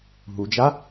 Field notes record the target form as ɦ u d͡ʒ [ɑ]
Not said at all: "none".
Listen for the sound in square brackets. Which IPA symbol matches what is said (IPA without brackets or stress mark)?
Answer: a